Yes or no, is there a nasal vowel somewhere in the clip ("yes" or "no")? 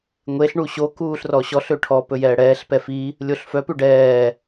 no